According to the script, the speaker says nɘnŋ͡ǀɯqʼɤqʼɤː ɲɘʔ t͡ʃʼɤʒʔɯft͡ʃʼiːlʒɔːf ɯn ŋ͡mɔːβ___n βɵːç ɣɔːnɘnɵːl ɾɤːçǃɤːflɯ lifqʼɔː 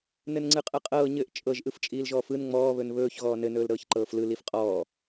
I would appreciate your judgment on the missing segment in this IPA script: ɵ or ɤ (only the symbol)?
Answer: ɵ